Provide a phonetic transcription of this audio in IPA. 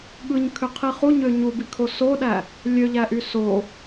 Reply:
ɠ ɯ ɲ kʰ ø qʰ i χ u ɲ ø ɲ u b i kʰ o s o ɗ æ | lʲ ø ʎ æ ʔ y s o

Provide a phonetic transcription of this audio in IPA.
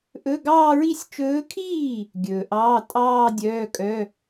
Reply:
ʔ ɵ˧˥˧ ɡ ɑː˥˧ ɹ i˥˧ sʲ t͡ʃ ɵː˧˥ kʰ iː˥˩ | ɡʲ ɵː˨ ʔ ɑː˧˥˧ tʼ ɑː˥˧ dʲ œː˧˥˧ kʼ œ˧˥˧

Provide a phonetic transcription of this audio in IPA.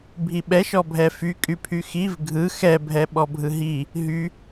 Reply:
bʱ i ɓ ɛ ʃ ɔ bʱ ɛ f y kʼ y pʰ y x i v ɡʱ ɯ x ɛ bʱ ɛ ɓ ɔ bʱ ɯ ɦ i | ɦ y

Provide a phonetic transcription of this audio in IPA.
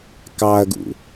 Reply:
k ɑ ɐ̯ ɡ ṵ

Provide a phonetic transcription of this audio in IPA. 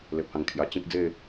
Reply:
l e˨ p̚ h ã˨˩ ŋ kʰ j a˨˩ t͡ɕ ĩ˦ k̚ d͡z e˥˧

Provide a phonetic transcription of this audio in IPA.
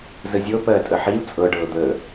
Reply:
z ə zʲ ɤ p ɜː tʼ ə ħ i l t͡sʼ ɤ ɖ ɤː d̪ əː

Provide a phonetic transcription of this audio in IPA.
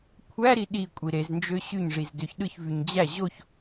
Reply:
kʷʰ æ ɾ i ɗ i kʷʼ i ɾ e z n d͡ʒ ø ɕ y ɲ ʐ i z d ø ç ɗ ɯ ç v y ɲ d͡ʑ æ ʑ o ç

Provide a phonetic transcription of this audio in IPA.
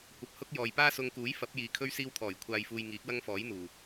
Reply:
kʷ ɐ˨ p̚ h ʊ˥ k̚ j ɔː˨ j p aː˥ s ʊ˧ ŋ k uː˨˥ j f ɐ˨˥ p̚ j iː˨ kʰ ɵ˥ ɥ s iː˥ w t̪ʰ ɔː˨˩ j kʷʰ aː˧ j f uː˧ j ŋ iː˨˥ k̚ w ɐ˥ ŋ f ɔː˨˥ j n̪ uː˨˩

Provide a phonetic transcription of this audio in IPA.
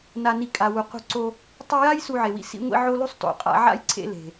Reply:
n a˧ n i˧ kʼ a˨ w u˨ q ṳ˧ ǀ o˧ | tˤ i˧ j a˦ j s u˧ ʕ e˨ w ḭ˧ s ḭ˦ ŋʷ ḭ˧ ʕ o˦ l u˦ sˤ t o̰˨ qʼ a̰˧ ʕ a̰˦ j ǀʰ ḛ˧ l e̤˨

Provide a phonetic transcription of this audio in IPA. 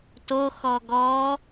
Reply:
t o x ɔ ɡ ɔ

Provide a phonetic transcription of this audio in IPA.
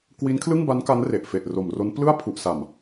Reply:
k w i˦˥ n kʰ l ɯ˥˩ ŋ b a˦˥ n k a˦˥ n r e˨˩ ʔ f e˨˩ ʔ r o˨˩ m r o˦˥ n p l ɯ˥˩ a̯ pʰ u˨˩ ʔ s a˨˩ m

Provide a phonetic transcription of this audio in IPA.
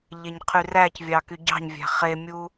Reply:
ʎ e ɲ qʰ y r æ c vʲ ɑ k y ɟ ɑ̤ ɲ vʲ æ̤ χ e mʲ u

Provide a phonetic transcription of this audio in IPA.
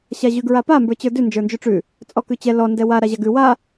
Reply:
ɕ a ʑ ʉ ɡ ɹ a p a m b ə˞ t͡ɕ ə˞ d ʉ n d͡ʒ ə˞ n d͡ʒ ʉ ʈ͡ʂ ʉ | t͡sʼ ɔ k ʉ t͡ɕ ɛ l ɔ n d ɛ w a ɾ a ʑ a ɡ ʉ w a

